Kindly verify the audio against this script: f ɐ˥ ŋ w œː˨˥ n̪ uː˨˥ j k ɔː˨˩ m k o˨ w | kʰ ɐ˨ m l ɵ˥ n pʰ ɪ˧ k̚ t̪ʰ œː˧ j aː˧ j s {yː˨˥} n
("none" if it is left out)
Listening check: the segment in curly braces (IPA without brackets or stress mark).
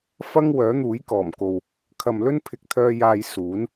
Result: uː˨˥